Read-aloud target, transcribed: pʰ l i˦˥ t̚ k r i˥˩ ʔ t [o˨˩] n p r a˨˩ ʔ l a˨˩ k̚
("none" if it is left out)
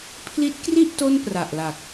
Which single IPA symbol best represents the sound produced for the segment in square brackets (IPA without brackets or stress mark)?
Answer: o˥˩